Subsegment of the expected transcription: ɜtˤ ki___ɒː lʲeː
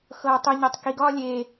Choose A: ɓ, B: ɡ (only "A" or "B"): B